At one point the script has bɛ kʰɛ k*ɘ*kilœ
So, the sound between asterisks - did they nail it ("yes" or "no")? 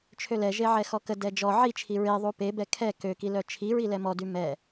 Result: no